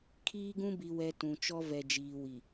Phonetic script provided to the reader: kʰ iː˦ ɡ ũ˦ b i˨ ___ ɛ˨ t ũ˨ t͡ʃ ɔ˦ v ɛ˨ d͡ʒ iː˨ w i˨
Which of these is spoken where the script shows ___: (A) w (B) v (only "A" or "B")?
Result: A